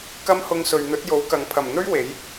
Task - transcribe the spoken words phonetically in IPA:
kɐ˥mhʊ˧ŋsɵ˨ɥ n̪ɵ˨˥t̚jo˨˥w kɐ˨˧ŋ pʰɐ˨˩mn̪ɵ˥ɥ we˨˥j

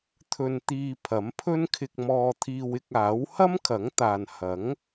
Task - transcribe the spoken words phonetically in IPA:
t̪ʰɵ˧nt̪iː˧pʰɐ˨˥mpʰɵ˥n kʰɪ˧k̚mɔː˧t̪ʰiː˧w ɪ˧k̚aː˨˥w hɐ˥mkʰɐ˨˥ŋt̪aː˨nhɐ˨˥ŋ

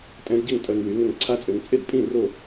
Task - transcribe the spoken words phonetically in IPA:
tʼɛ̃˧˥dɟɪ˥˩ŋ tʼœ˧ŋwy˩˥ŋʏ˥˩ŋ ǀʰa˧˥t͡sʼø˩˧ŋ t͡sʼɪ˥˩dpʼĩ˥˩ ro˥˩

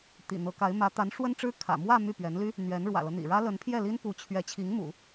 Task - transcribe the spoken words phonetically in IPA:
t̪ḭ˨˩n̪ɤ˧˥ka˧˥ɪ̯ mä˧˥ t̪a˧˥nʂwə˥nʈ͡ʂɻ̩˥ kʰä̰˨˩mwä˥˧ my˥˩pɥɛ˧˥nly˥ | n̪ɥɛ˧˥n ɻwä̰˨˩lɤ˦n̪ḭ˨˩ɻä˥ lə˧˥npʰjɛ˥˩li˥n pu˧˥ t͡ɕʰɥɛ˧˥ t͡ɕʰi˧˥ŋmṵ˨˩˦

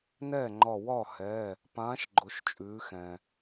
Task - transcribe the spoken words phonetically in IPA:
nɛː˥˩ŋ͡ǃɒ˧˩ wɒ˥˩hɛː˩˧˩ | pãː˨˥ʃɡ͡ǃʊ˩˧ʃ t͡ʃʼʉː˩˧xɛ̃ː˩

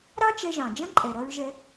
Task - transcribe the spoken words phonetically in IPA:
ɾɑ˥t͡ʃɛ˧ʒɑ̃˩d͡ʒɐ̃˥ ǃʼɛ˩ɾɐ˧ɹʒɛ˧

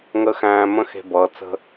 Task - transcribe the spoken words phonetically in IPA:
ŋə˧˥xæ̃ː˧mə̃˧˥ xe̤˥bʌː˧˥ t͡sə̤˥

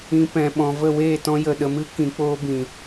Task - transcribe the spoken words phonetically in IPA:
ĩ˧ pɛ̃˨ɓɔ̃˨ və˦˨weː˦˨tɔ̃˧ jə˨ɗə˨mɨ˦ kĩ˨ k͡poː˦bĩ˨

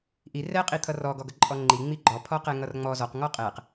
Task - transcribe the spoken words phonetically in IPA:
ʔi rɛ qʼit̪ʰʌrɔ ɡɔɡʌǃʼɔŋ͡ǃi ŋ͡miɡ͡ǃɔ pʰɔqɛŋʌrŋ͡mɔ zɔq ŋɔqʼɛq

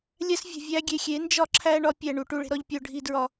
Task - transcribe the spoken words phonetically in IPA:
lʲæ˦svʲo̤˨ vʲæ˧ɡʲe˨xʲe˨˦ nd͡ʒɒ˦ǁʰæ˦ ɳɒ˦ pʲæ˦˨ɳu˧ ʈu˧ɭe̤˦ɾɒ˦ʎ pʲo˧ ɖʱi˧dɹɒ˧

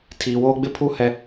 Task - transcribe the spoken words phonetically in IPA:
tʰiː˨woː˦ ɡ͡bɪ˦pʰu˦˨ hɛ˦

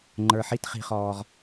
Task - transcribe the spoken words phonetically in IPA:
ŋ͡ǃə˞˨ħi˦t χi̤˦χɔː˦ʁ

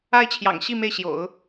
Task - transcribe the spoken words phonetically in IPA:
a˥˩ɪ̯t͡ɕʰjɑ̰˨˩ŋɕi˥˧ me˥˩ɪ̯ɕjo̰˨˩˦ʊ̯

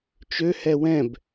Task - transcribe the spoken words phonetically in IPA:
t͡ʃøhɛ wɛ̃b

